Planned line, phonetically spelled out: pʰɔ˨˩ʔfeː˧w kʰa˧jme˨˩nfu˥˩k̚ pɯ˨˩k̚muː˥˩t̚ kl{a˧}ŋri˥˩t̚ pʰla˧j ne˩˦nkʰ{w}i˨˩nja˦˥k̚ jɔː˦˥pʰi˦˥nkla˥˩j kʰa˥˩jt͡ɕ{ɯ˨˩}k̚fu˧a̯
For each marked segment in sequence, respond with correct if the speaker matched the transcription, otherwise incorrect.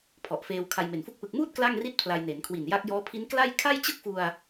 incorrect: a˥˩, correct, incorrect: ɯ˥˩

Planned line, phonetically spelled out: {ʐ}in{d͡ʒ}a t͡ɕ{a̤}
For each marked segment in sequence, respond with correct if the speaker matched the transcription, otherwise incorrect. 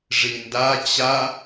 correct, incorrect: d, incorrect: a

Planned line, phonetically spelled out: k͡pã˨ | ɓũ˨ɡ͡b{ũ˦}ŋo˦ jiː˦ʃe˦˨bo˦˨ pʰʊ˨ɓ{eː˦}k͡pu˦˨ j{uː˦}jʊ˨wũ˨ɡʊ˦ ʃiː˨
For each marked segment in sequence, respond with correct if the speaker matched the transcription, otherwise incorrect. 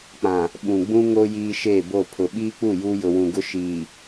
correct, incorrect: iː˦, correct

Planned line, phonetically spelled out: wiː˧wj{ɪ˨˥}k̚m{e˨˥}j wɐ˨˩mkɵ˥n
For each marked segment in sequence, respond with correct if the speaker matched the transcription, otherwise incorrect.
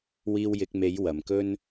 correct, correct

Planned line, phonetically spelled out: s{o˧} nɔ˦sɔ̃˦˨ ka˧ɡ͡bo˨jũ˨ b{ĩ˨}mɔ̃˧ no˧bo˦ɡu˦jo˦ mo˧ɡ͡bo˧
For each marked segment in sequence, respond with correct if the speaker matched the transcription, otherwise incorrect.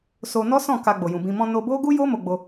correct, correct

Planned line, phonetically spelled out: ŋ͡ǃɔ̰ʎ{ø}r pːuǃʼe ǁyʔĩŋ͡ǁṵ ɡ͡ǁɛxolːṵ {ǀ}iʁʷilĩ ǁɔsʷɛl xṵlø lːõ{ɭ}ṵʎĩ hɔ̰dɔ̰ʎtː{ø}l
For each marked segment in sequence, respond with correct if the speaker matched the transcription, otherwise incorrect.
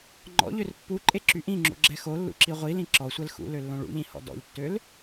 correct, incorrect: ǁ, correct, correct

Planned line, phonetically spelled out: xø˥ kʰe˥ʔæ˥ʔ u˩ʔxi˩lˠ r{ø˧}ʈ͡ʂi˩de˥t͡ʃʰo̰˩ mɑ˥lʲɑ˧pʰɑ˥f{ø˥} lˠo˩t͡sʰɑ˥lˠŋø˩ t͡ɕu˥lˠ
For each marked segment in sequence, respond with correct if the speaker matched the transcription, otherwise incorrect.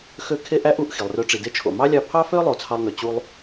correct, correct

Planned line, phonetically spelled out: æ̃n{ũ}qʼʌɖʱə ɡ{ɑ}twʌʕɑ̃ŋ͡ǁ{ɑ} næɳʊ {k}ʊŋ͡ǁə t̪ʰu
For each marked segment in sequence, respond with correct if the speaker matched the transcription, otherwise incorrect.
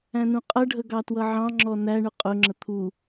correct, correct, incorrect: ɔ, incorrect: qʼ

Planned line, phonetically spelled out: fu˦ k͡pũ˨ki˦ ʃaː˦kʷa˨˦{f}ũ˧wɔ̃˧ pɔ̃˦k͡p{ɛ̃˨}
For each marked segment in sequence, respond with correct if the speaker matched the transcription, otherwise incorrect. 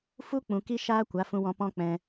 correct, incorrect: ɛ̃˧

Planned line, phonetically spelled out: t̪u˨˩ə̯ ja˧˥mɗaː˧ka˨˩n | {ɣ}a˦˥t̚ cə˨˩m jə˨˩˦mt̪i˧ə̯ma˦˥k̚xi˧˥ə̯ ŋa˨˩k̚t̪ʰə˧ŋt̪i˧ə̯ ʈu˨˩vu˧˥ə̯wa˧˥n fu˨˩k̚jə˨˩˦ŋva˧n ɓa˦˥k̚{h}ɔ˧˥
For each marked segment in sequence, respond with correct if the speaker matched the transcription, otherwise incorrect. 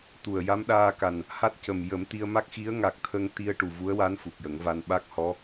incorrect: h, correct

